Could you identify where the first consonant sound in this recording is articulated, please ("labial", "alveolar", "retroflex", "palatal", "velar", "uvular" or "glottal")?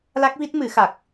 alveolar